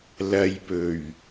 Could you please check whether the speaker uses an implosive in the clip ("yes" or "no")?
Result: no